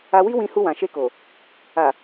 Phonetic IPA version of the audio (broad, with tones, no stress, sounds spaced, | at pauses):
a˧ w i˦ w ĩ˧ h u˧ w ã˨ ʃ e˧ k o˨ | a˨